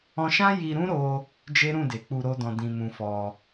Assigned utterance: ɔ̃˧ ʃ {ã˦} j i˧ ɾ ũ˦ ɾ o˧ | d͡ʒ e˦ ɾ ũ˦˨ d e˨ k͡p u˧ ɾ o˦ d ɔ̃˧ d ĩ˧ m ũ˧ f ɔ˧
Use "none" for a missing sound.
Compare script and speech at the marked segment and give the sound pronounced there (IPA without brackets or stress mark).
ã˦